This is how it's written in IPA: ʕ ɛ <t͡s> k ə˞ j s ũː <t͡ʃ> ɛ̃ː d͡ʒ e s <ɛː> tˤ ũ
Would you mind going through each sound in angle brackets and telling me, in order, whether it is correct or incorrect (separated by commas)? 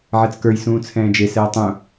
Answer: correct, incorrect, correct